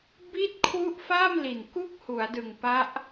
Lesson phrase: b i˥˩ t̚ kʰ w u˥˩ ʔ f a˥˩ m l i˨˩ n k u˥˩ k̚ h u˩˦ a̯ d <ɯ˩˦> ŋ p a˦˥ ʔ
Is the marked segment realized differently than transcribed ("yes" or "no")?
yes